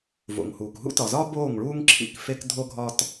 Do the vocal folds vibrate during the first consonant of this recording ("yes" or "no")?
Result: yes